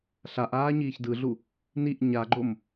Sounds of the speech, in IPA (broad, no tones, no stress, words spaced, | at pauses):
ɬaʔaː ɲiːçdɯɮu | niʔ ɲaɡ͡ǃom